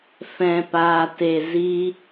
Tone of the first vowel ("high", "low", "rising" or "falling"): low